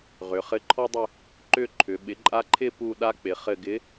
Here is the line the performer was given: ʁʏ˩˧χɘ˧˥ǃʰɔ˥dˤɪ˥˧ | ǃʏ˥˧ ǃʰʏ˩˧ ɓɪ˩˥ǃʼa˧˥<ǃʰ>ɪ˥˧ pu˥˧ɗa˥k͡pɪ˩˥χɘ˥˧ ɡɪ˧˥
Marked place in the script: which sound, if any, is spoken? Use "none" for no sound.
ǃʰ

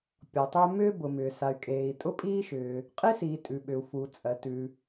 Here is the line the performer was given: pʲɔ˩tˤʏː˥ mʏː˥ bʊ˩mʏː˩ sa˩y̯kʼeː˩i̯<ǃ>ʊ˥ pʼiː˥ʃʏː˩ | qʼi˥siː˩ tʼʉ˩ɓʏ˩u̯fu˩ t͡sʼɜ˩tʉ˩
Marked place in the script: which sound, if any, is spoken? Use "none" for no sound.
tʼ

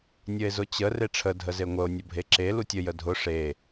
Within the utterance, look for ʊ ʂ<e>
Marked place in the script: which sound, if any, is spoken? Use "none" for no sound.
e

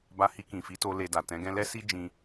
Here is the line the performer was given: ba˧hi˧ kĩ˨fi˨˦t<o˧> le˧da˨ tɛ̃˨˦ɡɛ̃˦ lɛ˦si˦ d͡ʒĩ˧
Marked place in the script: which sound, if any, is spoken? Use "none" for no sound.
o˧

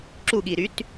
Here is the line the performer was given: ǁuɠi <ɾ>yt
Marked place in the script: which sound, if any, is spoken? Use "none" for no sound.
ɾ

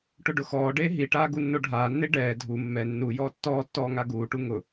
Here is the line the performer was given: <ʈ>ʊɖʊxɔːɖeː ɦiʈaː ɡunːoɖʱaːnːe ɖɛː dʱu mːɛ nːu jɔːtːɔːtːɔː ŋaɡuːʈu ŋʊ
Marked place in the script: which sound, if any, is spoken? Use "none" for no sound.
ʈ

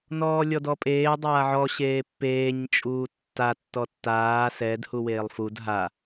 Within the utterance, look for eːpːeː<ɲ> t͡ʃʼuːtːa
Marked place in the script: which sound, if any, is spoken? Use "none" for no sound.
ɲ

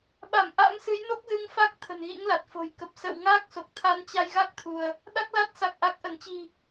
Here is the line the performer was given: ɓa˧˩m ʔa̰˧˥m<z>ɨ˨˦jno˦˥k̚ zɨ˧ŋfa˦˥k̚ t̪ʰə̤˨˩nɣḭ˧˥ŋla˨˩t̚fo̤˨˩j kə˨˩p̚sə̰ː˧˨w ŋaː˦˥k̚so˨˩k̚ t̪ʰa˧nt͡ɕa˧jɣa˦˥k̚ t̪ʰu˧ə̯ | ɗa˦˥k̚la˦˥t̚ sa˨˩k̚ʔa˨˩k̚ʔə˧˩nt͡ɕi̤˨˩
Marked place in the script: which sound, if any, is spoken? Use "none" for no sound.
s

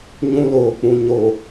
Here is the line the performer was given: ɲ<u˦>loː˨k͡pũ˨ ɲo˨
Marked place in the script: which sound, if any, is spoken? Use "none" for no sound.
ũ˦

